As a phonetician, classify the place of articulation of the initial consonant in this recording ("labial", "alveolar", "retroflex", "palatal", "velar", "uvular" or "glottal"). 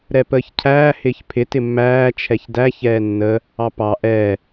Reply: alveolar